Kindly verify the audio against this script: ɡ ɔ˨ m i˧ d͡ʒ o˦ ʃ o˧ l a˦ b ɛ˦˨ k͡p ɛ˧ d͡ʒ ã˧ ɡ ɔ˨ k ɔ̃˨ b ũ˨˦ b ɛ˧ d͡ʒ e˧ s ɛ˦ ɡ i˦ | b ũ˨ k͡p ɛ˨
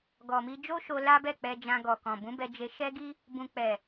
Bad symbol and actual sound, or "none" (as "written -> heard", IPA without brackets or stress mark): s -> ʃ